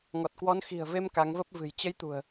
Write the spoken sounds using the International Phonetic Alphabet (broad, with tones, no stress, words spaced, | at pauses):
ŋɔ˨˩t̚kwɔ˨˦n xi̤˨˩ə̯ve˧m ka˨˦ŋvə˦˥p̚vɨ̤˨˩j t͡ɕə˨˦j t̪ṳ˨˩ə̯